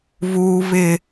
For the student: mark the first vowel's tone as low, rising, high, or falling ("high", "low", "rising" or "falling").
high